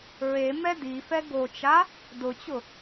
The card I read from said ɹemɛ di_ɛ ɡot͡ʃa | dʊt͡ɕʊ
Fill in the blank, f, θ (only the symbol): f